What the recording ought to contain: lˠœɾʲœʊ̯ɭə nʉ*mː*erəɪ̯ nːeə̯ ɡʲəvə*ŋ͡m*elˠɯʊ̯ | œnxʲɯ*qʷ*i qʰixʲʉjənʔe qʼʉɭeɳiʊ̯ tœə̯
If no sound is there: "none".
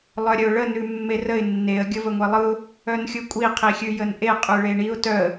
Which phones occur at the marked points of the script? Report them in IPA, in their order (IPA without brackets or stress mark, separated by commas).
mː, ŋʷ, kʷʼ